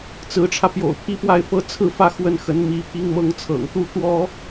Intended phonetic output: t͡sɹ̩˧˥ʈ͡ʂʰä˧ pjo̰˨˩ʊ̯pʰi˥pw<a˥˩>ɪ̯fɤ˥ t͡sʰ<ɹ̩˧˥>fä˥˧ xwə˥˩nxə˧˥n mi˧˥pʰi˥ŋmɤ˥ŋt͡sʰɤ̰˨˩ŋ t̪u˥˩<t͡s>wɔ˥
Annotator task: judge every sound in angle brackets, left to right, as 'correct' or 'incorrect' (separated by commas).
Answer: correct, incorrect, incorrect